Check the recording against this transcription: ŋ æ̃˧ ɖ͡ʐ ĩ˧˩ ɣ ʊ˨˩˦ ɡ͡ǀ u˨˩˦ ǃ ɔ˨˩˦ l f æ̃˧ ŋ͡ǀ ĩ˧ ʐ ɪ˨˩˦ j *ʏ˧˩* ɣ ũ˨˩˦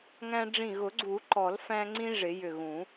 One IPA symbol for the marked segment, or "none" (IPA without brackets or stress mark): ʏ˧˩